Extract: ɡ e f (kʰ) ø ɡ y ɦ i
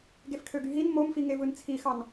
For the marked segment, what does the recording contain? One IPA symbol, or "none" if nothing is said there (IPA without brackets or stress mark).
kʰ